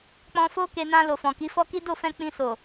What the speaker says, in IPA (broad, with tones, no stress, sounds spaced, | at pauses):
k͡p ɔ̃˧ f o˦ k e˧ n ã˧ l o˨ f ɔ̃˨ k i˨˦ f ɔ˦ k i˦ d o˦˨ f ɛ̃˧ k͡p ĩ˧ s o˨